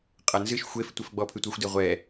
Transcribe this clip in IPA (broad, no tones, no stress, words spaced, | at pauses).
qʼɐnzɨʃ xʷef tʷefɡ͡bɔpʰɨtʷaxʷ dɘʁʷɛ